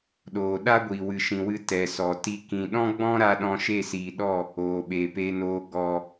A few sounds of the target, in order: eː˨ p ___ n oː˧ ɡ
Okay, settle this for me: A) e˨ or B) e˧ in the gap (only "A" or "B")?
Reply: B